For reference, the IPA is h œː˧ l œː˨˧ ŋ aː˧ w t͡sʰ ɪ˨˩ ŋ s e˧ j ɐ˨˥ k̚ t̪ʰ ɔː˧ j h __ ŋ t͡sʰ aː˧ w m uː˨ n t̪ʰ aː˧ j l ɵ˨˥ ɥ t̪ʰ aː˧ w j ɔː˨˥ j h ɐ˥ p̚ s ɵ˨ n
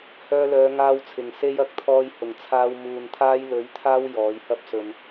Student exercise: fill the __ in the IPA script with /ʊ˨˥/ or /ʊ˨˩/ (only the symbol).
ʊ˨˩